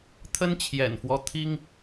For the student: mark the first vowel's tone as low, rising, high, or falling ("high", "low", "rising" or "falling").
high